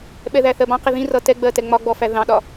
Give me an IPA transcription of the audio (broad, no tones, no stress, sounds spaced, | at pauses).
ɓ ɛ ð æ θ ɜ b ɑ̃ q i ð ĩ r ʌ t ɛ ɡ͡b ɜ t ɛ ŋ͡m ɒ ɡ͡b ɔ f æ ð ɑ̃ ɗ ɒ